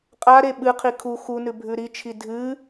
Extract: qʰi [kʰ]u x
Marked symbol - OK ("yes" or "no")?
yes